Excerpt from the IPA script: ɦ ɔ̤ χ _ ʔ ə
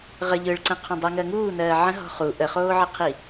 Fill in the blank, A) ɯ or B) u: B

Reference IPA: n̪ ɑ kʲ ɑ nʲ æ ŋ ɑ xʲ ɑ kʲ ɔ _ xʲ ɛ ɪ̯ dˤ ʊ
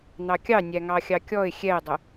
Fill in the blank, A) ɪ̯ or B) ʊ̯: A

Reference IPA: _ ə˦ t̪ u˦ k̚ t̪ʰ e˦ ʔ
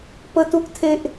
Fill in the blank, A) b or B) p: B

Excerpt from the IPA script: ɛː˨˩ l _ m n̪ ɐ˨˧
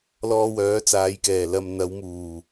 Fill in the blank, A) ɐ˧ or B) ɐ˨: B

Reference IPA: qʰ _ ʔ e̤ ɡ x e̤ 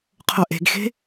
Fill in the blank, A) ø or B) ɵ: B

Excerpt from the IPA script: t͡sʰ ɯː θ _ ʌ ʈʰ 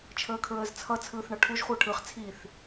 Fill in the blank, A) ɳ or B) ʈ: A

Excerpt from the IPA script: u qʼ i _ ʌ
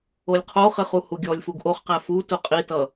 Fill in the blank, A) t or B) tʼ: A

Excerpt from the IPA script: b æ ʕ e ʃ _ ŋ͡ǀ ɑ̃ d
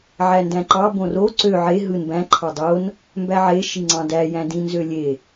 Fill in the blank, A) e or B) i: B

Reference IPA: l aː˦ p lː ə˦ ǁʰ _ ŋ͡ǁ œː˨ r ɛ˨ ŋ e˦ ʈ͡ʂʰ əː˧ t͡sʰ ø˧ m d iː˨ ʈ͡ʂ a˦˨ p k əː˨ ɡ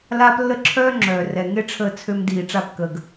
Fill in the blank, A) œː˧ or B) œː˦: B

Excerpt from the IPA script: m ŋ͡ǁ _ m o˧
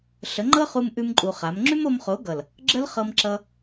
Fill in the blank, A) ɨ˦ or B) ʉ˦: B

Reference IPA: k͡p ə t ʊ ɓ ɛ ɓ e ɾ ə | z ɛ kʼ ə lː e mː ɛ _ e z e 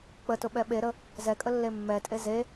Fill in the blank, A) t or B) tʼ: B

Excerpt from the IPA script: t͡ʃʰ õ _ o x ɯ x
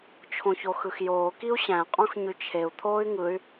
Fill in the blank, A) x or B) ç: B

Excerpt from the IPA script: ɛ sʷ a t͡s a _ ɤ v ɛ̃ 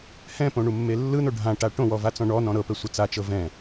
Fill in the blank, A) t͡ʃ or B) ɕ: A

